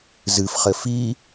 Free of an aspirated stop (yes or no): yes